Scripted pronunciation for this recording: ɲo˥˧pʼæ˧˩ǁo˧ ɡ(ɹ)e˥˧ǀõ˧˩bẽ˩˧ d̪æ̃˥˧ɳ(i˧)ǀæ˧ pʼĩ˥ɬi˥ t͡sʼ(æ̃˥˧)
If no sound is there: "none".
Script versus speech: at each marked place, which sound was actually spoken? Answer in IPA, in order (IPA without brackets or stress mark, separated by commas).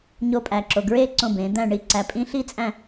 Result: ɹ, i˥˧, æ̃˥˧